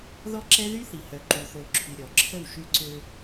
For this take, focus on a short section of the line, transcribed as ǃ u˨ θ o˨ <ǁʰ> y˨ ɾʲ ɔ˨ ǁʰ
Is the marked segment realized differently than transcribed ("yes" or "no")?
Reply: no